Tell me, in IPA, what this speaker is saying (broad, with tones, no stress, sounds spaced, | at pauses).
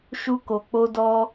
ʃ u˧ k o˨ k͡p o˧ d ɔ˧